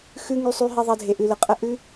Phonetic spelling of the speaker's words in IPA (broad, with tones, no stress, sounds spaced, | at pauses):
x ʉ˨ ŋ y˨ sˤ y˨ ɦ i˨ ðˤ ɐ˧ dʱ e˨ ʔ ʉ˨ l ə˨ qʼ ə˧ ʔ ʉ˧